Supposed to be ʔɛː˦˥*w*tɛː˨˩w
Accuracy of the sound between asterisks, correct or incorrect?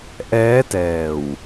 incorrect